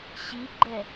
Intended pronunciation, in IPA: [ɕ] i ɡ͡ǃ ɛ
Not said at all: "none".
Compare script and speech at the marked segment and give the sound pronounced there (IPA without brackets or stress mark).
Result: ɕ